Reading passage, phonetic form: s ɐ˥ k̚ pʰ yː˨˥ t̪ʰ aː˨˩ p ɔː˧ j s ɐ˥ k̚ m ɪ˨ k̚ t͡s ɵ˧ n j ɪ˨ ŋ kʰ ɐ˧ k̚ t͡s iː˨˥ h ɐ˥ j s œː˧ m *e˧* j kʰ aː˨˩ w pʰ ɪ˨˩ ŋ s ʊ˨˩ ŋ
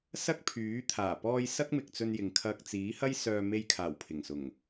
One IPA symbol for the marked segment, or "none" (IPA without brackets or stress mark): e˧